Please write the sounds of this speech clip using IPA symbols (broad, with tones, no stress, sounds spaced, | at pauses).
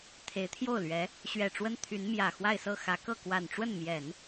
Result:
t̪ʰ e˧˥ ɪ̯ t̪ʰ j o˥˩ ʊ̯ l ɥ ɛ˧˥ | ɕ ɥ ɛ˨˩ ʈ͡ʂ w ə˥ n t̪ʰ y˧˥ n m j ä˨˩ x w a˥˧ ɪ̯ s ɤ˥˩ x ä˧˥ k ɤ˥˩ k w a˨˩ n ʈ͡ʂ w ə˥˩ n m j ɛ˨˩˦ n